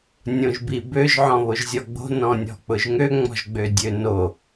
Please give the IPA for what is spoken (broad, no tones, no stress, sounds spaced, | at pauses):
nʲ õ ʒ b i b ø ʒ ʕ ɔ̃ β o ʒ zʲ ɔ ɡ͡b o̤ n ɔ̃ nʲ ɔ̤ k͡p ʊ ʒ ŋ ø ŋ͡m ɔ̤ ʒ ɡ͡b ø dʲ ø n o